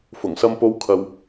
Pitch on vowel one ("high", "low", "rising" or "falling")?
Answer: low